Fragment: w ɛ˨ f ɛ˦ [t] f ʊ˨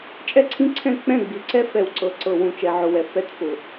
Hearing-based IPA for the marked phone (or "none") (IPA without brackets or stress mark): t